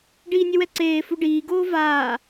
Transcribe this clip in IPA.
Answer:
ɖ iː nʲ e w ɛ ǀ eː f u ɖ iː ɡ oː v aː

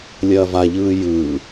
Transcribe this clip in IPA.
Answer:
lʲ ɐː v a ʎ ɯː j ɯː

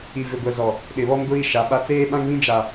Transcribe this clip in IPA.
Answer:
i˨ v ɪ˨ ɡʷ ɛ˨ z ɔ˨ | ɗ ɪ˨ β ɔ˦ m ɡʷ iː˦ ʃ a˨˦ ɓ a˦ t͡s eː˦ ɓ ã˦ ŋ β ĩ˦ d͡ʒ a˨

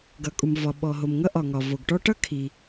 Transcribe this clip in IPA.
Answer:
ɡ ʌ˩ kʼ u˩ m v ɒ˩ ɓ ɔ˩ ɦ o˩ m ŋ ʌ˥ ʔ ɒ˩ ŋ ɒ˩ v o˩ ɡ ʈ ɔ˥ ʈ ʌ˥ kʰ i˩

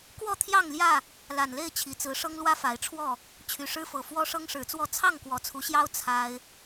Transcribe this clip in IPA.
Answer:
k w ɔ˥˨ t̪ʰ j ɑ˥˨ ŋ l j ä˥˨ | l a˨˩ n l e˥˨ ɪ̯ t͡ɕʰ i˨˩ t͡s ɹ̩˨˦ ʂ ɤ˦ ŋ l w ä˦ f a˨˦ ɪ̯ ʈ͡ʂʰ w ɔ˥˨ | t͡ɕʰ y˨˩ ʂ ɻ̩˦ f ɤ˨˩ f w ɔ˦ ʂ ɤ˦ ŋ ʂ ɻ̩˨˦ t͡s w ɔ˥˨ t͡sʰ ɑ˥˨ ŋ k w ɔ˨˦ t͡sʰ u˨˦ ɕ j ɑ˦ ʊ̯ t͡sʰ a˦ ɪ̯

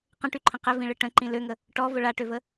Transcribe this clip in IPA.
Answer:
q ə̃ ʈ y ǃʰ ə̃ q ɘ v ĩ ɭ ɘ ʈ ə̃ ǃ ĩ l ø ŋ ə | ʈ ɔ v ʊ ɭ a ʈ ø v ə

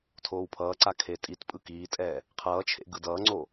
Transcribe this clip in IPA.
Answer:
tʰ oː w pʰ ʌː ǀ a kʰ e tʼ i t pʼ ɯ k iː tʼ ɛ | qʰ ʌː t͡ʃʰ ḛ ɡ ɯ d ʌː ŋ͡ǀ o

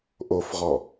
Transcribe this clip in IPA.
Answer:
ʔ o f ʁ ɔ

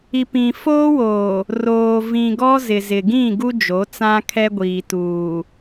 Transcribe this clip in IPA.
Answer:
i˨ p ĩ˨ f oː˦ w oː˨ | r oː˨ v ĩ˨ ɡ ɔ˦ z ɪ˨ z ɪ˨ ɡ ĩ˦˨ ɡ u˦ d͡ʒ o˨˦ t͡s ã˦ kʰ ɛ˦ ɡʷ iː˨ t uː˨

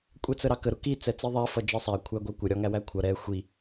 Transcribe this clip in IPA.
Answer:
kʷʼ ɛ t͡s ə ɾ ɑ k ə ɾ ʊ k i t͡s ɛ t͡s i ðˤ æ f ʌ d͡ʒ ɜ sˤ æ kʷʰ æ ɡʷ ɜ kʷ ə ɾʲ ɒ ŋ æ w æ kʷʰ ʌ ɾ ɛ xʷ i

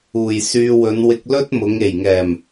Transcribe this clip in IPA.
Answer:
uː˨˩ j s yː˧ w ɵ˨˧ n w ɪ˧ k̚ l ɵ˥ t̚ m ʊ˨˧ ŋ e˨˩ j ŋ ɛː˨˩ m

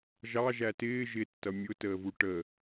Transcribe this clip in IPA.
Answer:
ʒ ɑ ʒ æ t ɪː ʒ ɪ tː ʌ mʲ ʊ t əː v u ʈ ə

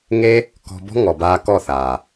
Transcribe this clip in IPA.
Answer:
ŋ e˦ | k ɔ̤˧ b ɔ̤˦ ŋ ɔ˨ b aː˧ k ɔ˦˨ θ aː˨

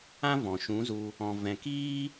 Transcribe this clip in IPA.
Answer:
ã˦ v ɔ̃˨ ʃ ũ˨˦ z u˧ | ɔ̃˨ v ɛ̃˨ k iː˦

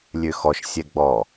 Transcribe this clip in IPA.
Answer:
lʲ ø x ɔ ʃ sʲ ɛ ɡ͡b ɔ

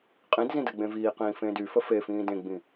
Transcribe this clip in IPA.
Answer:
qʼ ĩ d z ĩ d ə ɡ͡b ẽ v iː q ĩː f ẽː d y f ə f e f ĩː d ẽ ɡ͡b ĩ

